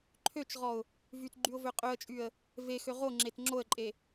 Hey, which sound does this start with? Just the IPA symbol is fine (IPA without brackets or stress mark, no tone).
ǃʰ